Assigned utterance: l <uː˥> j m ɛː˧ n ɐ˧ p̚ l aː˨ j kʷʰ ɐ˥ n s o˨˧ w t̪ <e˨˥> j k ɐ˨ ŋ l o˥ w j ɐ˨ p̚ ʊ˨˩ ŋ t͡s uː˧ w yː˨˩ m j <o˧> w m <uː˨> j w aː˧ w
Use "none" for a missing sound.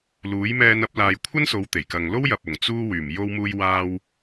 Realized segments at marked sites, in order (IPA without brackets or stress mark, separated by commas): uː˨˥, e˨˩, o˧, uː˧